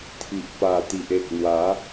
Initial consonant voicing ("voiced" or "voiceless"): voiceless